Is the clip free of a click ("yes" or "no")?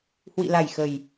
yes